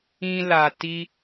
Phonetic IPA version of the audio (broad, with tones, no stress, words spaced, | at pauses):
ĩ˧la˨ti˧